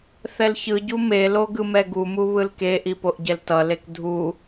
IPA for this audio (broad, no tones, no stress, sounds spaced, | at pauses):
θ ɛ l ç ɯ ɟ u m e l o ɡ ɯ m ɛ ɡ u m u β ɯ l k e ʔ i p o ʔ ɟ ɛ l t ʌ l e k dʱ u